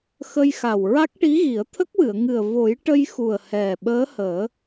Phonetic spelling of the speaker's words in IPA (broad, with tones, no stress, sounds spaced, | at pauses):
x ə˧ j x a˨˩ w ɹ a˦˥ k̚ ʈ i˧˥ ɣ i˨˩˦ ə̯ t̪ʰ ə˦˥ k̚ w ɨ˨˩˨ ə̯ ŋ ɨ˨˩ ə̯ v o˨˩˦ j ʈ ə˧ j x u˨˩ ə̯ h ɛ˨˩ ɓ əː˧˥ h əː˨˩˦